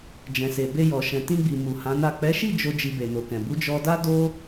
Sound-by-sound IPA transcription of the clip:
d͡ʒ ɛ̃˨ s e˨ b e˧ j ɔ˨ ʃ ɛ̃˨ t ĩ˧ ɡ͡b i˨ m u˨ h ã˨˦ n a˦˨ k͡p ɛ˨˦ ʃ i˦˨ d͡ʒ o˧ d͡ʒ i˧ b e˨ n o˨ k ɛ̃˨ b u˨˦ d͡ʒ ɔ˧ d a˦ d o˦

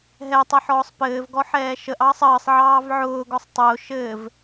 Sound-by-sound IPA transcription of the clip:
ɦ ɛ tˤ ɘ ħ ɔː sˤ p ɘː v ɡ ɔ ħ ɛː ʃ ə ʔ ɑː sˤ əː sˤ ʕ ɑː v ʕ ʊː ɡ ɔ sˤ tˤ ʊː ʃ ɘː v

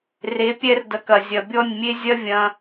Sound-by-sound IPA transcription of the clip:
r e˨˦ pʲ ɛ˦ r d ɐ˧ k ɐ˨ zʲ ɐ˨ bʲ ɔ˦˨ nʲ mʲ e˦ zʲ ɐ˦ vʲ ɐ̃˧

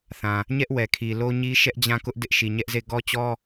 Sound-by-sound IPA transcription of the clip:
θ ã˨ | ɲ ɛ˦ ʔ w ɛ˨ kʰ i˨ l o˦ ɲ i˦ ʃ ɛ˦ ʔ d͡ʑ ã˦˨ k ʊ˦ ʔ d ɪ˦ ʔ ʃ i˨ ɲ ɛ˦ ʔ z e˦˨ ɡ ɔ˦ t͡ɕ ɔ˦

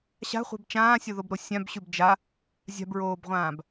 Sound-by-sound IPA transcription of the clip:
ɕ a̤ χʷ ɛ̤ b t͡ʃ ãː sʲ o ð o b ɾ o sʲ ã b ɕ ʉ b d͡ʒ a | zʲ a̤ b ɹ oː b ʁʷ ãː b

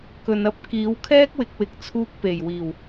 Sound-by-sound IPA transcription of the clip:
k ɵ˨ n ɐ˥ p̚ k iː˨˥ w kʰ ɛː˥ k̚ w ɪ˨ k̚ w ɪ˨ k̚ t͡sʰ uː˧ k̚ p e˨˩ j w iː˨˩ w

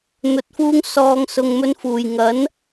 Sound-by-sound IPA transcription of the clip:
n̪ ɵ˧ t̚ f uː˥ ŋ s ɔː˧ ŋ s ʊ˧ ŋ m ɵ˥ n f uː˨ j ŋ ɐ˨˥ n

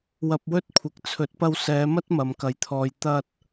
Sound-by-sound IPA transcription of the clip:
w ɐ˧ p̚ w ɵ˥ t̚ kʷʰ ɪ˨ k̚ t͡sʰ ɵ˨˥ t̚ p ɐ˧ w s ɛː˨˧ m ɐ˥ t̚ m ɐ˨ m k ɐ˨˧ j t̪ʰ ɔː˧ j t̪ ɐ˧ t̚

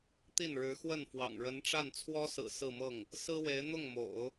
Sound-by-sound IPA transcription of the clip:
t̪ i˥˩ n ɻ ɻ̩˧˥ x w ə˥˩ n f w ɑ̰˨˩ ŋ ɻ ə˧˥ n ʈ͡ʂ a˥˩ n t͡sʰ w ɔ˥ s ɹ̩˨˩ s ɹ̩˥˧ m ɤ˥˩ ŋ | s ɹ̩˥ w e˧˥ ɪ̯ n̪ ʊ˥˩ ŋ m o̰˨˩˦ ʊ̯

